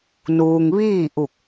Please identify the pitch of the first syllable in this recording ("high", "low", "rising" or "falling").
low